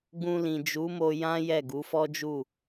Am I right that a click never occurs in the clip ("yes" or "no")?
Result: yes